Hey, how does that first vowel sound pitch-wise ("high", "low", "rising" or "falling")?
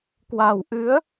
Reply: low